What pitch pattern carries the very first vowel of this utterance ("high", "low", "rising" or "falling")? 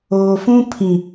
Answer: low